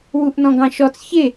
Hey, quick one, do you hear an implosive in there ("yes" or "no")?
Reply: no